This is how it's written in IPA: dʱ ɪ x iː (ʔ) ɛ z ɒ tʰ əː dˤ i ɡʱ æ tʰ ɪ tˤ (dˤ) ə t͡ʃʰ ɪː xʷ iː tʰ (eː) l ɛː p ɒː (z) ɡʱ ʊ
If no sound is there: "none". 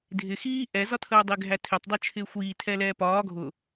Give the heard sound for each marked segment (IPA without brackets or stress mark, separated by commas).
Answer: ʔ, dˤ, ɛː, none